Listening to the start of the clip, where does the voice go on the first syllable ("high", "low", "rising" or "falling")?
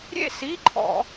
falling